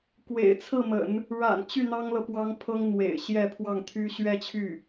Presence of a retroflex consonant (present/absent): present